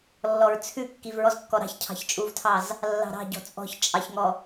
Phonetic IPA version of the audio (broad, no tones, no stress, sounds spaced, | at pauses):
lː ɔ ɹ t͡sʰ ʉ kː i v ɹ ɔ z kː ɔ ɾ ɑ̤ ç cʰ ɑ̤ ç t͡ʃʼ u v tʰ ɑ z | lː ɑ̤ ɾ ɑ̤ ɟ ɔ̤ t͡sʼ ɔ̤ ç t͡ʃʼ ɑ ç ŋ ɔ